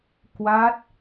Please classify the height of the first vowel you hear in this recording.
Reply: low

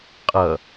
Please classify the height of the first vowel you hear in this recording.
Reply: mid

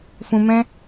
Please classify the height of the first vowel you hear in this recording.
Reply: high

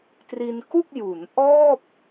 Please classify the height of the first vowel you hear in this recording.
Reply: high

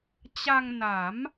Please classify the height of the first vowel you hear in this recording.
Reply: low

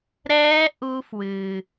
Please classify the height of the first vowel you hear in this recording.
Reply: mid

